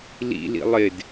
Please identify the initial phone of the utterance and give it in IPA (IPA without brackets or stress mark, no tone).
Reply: l